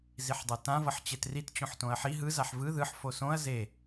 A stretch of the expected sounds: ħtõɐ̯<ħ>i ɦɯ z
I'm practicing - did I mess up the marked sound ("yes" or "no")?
no